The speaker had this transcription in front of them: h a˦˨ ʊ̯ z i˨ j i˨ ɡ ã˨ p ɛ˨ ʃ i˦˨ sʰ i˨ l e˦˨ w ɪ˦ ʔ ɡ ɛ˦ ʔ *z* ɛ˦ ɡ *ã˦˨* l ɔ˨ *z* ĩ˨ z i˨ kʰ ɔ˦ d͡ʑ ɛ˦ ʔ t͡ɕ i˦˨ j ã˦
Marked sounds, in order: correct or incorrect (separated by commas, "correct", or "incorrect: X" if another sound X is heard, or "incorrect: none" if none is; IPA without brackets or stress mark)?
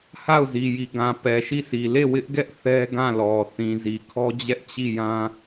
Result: incorrect: θ, correct, incorrect: θ